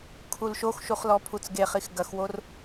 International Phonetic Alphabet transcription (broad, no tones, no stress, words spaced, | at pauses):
kʰulʃoxʃuχ lɔpʰut͡sɡeχix ɡɐxwor